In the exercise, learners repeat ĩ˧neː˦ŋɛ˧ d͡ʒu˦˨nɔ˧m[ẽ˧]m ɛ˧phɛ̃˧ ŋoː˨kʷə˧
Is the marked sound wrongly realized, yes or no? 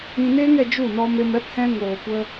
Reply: yes